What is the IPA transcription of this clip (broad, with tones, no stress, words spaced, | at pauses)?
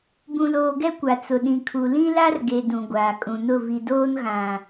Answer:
bũ˨loː˨ɡɛ˦ kʷa˨ t͡sʊ˨ɗĩ˨kʰu˨ lĩ˦la˦rɡe˨ dũ˨ɡʷaː˨kʼũ˨nʊ˦˨ vi˨doː˦n ɣã˨